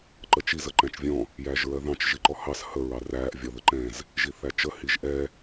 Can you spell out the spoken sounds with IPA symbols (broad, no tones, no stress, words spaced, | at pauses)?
ǃət͡ʃiz əǃæ̃t͡ʃvʲɔ̃ | jæːʒɹɜðɑ̃t͡ʃ ʒiǃɔhɑs hə ɹɑræːʔ vʲɒðəǃɛ̃z | ʒiθæt͡ʃə hiʒʔɛ